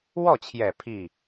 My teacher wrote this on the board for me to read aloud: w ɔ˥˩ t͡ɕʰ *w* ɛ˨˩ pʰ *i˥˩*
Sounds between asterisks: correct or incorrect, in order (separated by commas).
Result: incorrect, correct